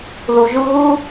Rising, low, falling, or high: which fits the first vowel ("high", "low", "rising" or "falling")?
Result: low